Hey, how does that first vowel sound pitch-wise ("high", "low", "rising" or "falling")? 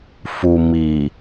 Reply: low